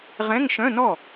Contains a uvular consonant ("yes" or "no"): yes